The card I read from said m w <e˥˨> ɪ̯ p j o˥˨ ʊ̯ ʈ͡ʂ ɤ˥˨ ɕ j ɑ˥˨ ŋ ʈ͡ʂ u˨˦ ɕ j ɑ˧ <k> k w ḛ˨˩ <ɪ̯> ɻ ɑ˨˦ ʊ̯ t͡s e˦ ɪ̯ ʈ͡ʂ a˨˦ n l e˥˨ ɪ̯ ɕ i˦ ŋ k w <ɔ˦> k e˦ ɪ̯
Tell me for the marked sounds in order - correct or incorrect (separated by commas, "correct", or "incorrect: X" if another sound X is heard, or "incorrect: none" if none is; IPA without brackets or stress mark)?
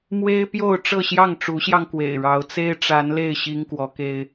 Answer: incorrect: e˦, incorrect: ŋ, correct, incorrect: ɔ˨˦